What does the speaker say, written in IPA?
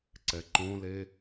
ǀ ɛ ǃ õ l e

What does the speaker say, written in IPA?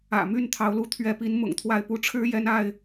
ä̰˨˩ m y˥˨ n t̪ʰ ɑ˨˦ ʊ̯ l u˨˦ t̪ʰ ɥ ɛ˨˦ p i˨˦ n m ʊ̰˨˩ ŋ t̪ʰ w a˥˨ ɪ̯ p u˦ ʈ͡ʂʰ ɻ̩˦ j ɛ˦ n a˥˨ ɪ̯

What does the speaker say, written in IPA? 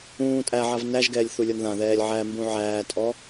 ũː tʼ æ ʕ a v n æ ʒ ɡ ɛː lʲ θ u lʲ ɔ n ð ã ð ɛː lʲ ʕ æ m b ũ ʕ æː tʼ ɔ

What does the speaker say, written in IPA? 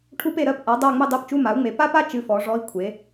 ʈʰ u˥ p e˦˨ ɾ ɜ˧˥˧ p ʔ a˩˥ dˤ a˦˨ ŋ͡m ɨ˦˨ dˤ e˧˥˧ p t͡ʃ u˧˥˧ m a˩˥ u̯ ŋ͡m e˩˥ p a˥ p a˥ t͡ʃ ɨ˧˥˧ f ɔ˩˥ ʐ ɔ˧˥˧ i̯ kʷʰ e˩˥

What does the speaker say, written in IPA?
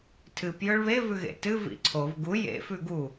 tʰ ɨ p j ɵ ɭ β e v ʉ ɣ ḛ t ɨ v ḭ ǀʰ o v ɡ u j ḛ f ʉ ɡ u

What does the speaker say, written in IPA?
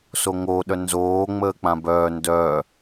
s o ŋ o ɗ œ n z oː ŋ͡m əː k͡p ã b œː n d œː

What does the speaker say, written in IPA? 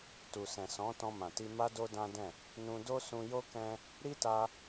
t u˨ s ɛ̃˨ s ɔ̃˨˦ t ɔ̃˧ m ã˨ t i˧ m a˦ d o˦ d ã˦ d ɛ̃˦˨ | n ũ˧ d o˦ s ũ˧ j o˦ k ɛ̃˦ | ɾ i˦ t a˦

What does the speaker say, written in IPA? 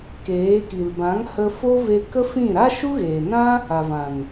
k eː˨˦ k i˨ l b ã˨˦ ŋ h ə˧ f o˦ v e˧ k ə˦ f ĩ˦˨ ɾ a˦ ʃ u˦ ɣ eː˨ n ã˦ | a˨ v ã˨ n

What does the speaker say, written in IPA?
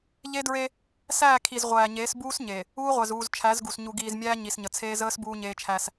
ʎ e˦ d ɹ e˦ | s æː˦˨ kʰ i˨ z ʁʷ æː˨ ɲ eː˨˦ s b uː˦ s ɲ e˨ | uː˦ ʁʷ æ˨ z uː˨ z t͡ʃʰ æ˨˦ z ɡ u˨ s ɲ u˨ ɡ iː˨ z mʲ æː˦ ɲ i˨ s ɲ ə˨ t͡sʰ eː˦ z əː˦ s b uː˦ ɲ eː˦ t͡ʃʰ æ˦ s

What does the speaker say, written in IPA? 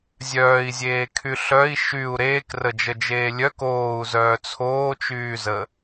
zʲ œː i̯ zʲ eː kʰ y ɬ œ i̯ ʃ y u̯ ɾ eː k r ə d͡ʒ ə d͡ʒ eː lʲ œ k oː u̯ z œː t͡sʰ oː t͡ʃ yː z ə

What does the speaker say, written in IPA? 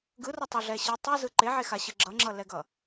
ɡ ɯ r ʌ tˤ ʌ ɮ ɛ ɕ ɯ tˤ ɯ z ɯ ǃ e ʕ e x a ɕ ɯ ɡ͡ǁ ʌ ŋ͡ǁ ʌ l ɛ ɡ ʌ

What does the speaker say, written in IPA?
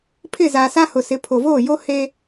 pʰ ɪ˦˨ z aː˨ s a˦ h ʊ˨ s ɪ˨˦ pʰ o˨ v oː˦˨ j o˦ h eː˦

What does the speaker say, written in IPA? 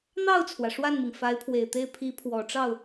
n̪ ɑ˥˩ ʊ̯ t͡sʰ w ä˩ ʂ w a˥˩ n m i˩ ŋ f a˧˥ ɪ̯ pʰ w e˨˩ ɪ̯ t̪ e˥˩ ɪ̯ pʰ i˧˥ pʰ w ɔ˨˩ ʈ͡ʂ ɑ˥˩ ʊ̯

